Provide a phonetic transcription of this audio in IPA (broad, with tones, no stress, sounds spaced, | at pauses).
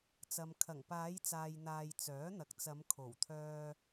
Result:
t͡s ɐ˨ m kʰ ɐ˨˩ ŋ p aː˨˧ j t͡s aː˨ j n̪ aː˨ j t͡s œː˨˥ n̪ ɐ˨ k̚ t͡s ɐ˨˧ m kʰ o˨˩ w t̪ʰ œː˧